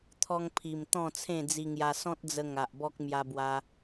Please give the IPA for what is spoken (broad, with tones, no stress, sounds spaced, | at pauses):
t̪ʰ ɔ˧ ŋ pʰ i˨˩ m t̪ ɔ̃˥˧ t͡sʰ ẽ˥˧ d͡z i˧ ŋ j a˧ s ɔ̃˦ t̚ d͡z ə˧ ŋ a˨ ʔ b ɔ˦ k̚ m j a˧ b w a˧